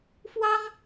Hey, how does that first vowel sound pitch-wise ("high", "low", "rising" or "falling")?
high